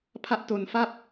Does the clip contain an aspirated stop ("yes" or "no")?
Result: yes